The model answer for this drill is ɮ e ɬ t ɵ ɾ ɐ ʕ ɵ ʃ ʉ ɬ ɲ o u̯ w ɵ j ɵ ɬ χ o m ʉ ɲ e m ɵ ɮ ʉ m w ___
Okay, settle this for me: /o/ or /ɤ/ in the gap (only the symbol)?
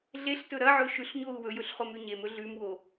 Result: o